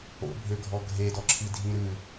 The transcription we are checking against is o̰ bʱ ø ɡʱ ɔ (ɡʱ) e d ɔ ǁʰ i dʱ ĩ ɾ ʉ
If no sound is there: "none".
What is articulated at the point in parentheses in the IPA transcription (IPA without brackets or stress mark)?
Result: ɡʱ